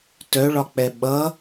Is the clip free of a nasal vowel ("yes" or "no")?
yes